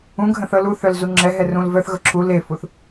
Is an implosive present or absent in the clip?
absent